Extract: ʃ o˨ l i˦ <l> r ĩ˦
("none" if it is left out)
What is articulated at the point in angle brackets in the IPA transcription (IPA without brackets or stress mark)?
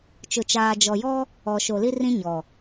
none